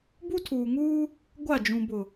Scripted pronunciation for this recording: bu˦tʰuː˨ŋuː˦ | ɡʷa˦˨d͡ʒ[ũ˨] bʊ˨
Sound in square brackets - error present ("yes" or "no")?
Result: no